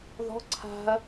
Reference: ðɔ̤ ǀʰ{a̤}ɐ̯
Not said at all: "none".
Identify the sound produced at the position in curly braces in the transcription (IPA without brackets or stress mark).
a̤